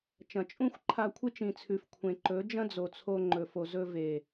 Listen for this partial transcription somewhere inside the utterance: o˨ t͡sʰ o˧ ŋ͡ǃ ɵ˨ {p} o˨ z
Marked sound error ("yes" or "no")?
yes